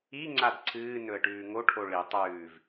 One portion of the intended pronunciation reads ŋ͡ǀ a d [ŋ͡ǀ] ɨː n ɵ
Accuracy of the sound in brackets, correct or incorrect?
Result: incorrect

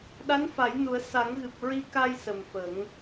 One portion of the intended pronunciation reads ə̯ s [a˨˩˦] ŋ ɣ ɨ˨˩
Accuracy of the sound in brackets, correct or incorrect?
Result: correct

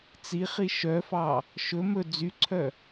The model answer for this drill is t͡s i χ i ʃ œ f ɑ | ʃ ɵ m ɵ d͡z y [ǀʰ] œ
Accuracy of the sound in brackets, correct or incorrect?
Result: correct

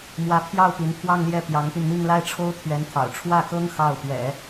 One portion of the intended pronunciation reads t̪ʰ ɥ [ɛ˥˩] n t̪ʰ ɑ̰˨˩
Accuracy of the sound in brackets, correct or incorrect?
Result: incorrect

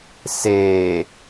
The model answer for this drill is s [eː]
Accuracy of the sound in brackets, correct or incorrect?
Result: correct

